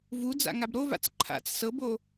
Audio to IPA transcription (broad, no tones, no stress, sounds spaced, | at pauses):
v u d͡z a̰ ŋ a b ɾ o v a̰ t͡s ǃʰ a̰ t͡s s ɤ b o